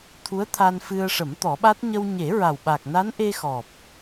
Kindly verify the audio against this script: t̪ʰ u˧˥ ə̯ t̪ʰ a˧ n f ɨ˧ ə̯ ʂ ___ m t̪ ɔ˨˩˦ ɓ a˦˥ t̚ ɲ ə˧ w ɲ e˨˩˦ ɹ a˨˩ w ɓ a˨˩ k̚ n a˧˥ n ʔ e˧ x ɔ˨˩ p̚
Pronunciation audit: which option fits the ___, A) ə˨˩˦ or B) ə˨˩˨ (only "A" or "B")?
A